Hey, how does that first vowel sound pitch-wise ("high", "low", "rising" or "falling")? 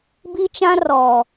high